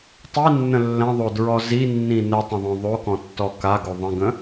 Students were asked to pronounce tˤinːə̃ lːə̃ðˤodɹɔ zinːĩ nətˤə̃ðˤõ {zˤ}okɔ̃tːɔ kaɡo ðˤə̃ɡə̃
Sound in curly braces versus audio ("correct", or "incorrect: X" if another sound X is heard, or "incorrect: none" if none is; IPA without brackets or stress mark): incorrect: ðˤ